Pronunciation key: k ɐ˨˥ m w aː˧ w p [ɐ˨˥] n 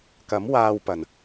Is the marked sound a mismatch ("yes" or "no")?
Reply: yes